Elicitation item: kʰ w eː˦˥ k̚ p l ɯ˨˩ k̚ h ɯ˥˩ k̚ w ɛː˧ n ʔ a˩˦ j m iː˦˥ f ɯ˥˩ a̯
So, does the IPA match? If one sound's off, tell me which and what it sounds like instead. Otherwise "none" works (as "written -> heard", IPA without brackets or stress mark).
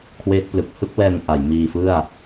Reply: iː˦˥ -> iː˧